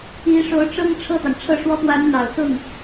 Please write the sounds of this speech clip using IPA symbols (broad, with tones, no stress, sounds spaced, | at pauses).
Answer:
i˧˥ ʂ o˧˥ ʊ̯ ʈ͡ʂ ɤ˥ ŋ ʈ͡ʂʰ ɤ˥˩ t̪ ɑ˩ ŋ ʈ͡ʂʰ ɤ˥˩ ʂ w ɔ˥ p w a˧˥ n n̪ ɑ˨˩ ʊ̯ s ʊ˥˩ ŋ